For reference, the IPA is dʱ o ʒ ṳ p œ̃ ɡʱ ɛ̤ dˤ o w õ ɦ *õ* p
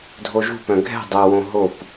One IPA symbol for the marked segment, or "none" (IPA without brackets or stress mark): o